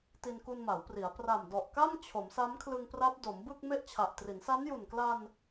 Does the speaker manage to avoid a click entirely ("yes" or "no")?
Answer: yes